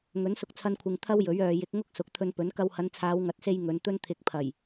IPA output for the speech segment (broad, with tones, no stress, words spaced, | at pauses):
ŋɵ˨˥nsʊ˧k̚t͡sʰɐ˧nkʷʰɪ˨ŋ t̪ʰɐ˥wjɵ˨˥ɥ œː˨jɪ˨˥k̚ŋʊ˥k̚ sʊ˨˥k̚ t̪ʰɵ˧npɵ˨˥n kɐ˧whɐ˨˧nt͡sʰaː˨˧w ŋɐ˨˥t̚se˧j ŋɵ˨˧nt̪ɵ˥n t̪ʰɪ˨˥k̚pʰɐ˨˩j